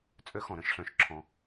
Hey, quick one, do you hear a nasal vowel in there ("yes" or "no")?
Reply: yes